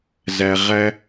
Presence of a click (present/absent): absent